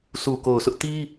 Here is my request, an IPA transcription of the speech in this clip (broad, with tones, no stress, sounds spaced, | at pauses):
sʰ u˨ k o˨ ʊ̯ sʰ ʊ˦ ʔ t i˦